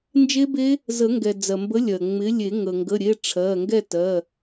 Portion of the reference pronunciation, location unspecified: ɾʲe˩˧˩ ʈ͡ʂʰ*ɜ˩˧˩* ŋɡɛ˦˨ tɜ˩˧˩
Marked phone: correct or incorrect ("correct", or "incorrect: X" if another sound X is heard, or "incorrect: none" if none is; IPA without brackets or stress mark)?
correct